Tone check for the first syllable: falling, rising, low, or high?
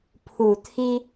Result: low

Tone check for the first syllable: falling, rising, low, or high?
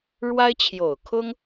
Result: high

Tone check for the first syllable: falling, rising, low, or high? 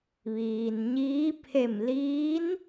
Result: low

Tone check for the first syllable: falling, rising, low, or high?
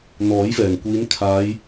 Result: rising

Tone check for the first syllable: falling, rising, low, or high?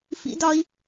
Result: high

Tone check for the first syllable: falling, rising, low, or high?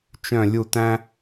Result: falling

